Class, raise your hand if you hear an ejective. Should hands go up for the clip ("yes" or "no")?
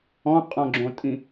yes